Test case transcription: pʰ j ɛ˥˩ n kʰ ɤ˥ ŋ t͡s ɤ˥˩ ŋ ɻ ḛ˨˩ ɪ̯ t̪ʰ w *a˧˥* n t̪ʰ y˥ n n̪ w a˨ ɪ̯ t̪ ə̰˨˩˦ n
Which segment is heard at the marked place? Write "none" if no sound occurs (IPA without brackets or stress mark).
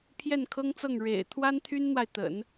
a˥